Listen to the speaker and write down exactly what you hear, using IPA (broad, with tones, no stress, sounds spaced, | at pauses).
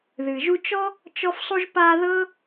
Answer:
ð ɨ˩ ʒ u˦ t͡ʃ ɔ˥ | t͡ʃ ɔ˦ f sˤ u˦ ʒ p a˦ ð ɤ˥